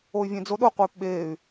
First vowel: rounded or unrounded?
rounded